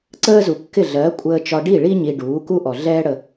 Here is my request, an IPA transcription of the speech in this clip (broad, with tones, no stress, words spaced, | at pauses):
ǀəː˥zu˩kːɪ˥˩ ɮɜ˩˥ kʷʼəː˧t͡ʃɒ˧ɖi˥˩ɭi˥ ɲi˧ ɖuː˩˥ku˥ ʔɔ˩ɮɛː˥ ɽə˧